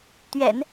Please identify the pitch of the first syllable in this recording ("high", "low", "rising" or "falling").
low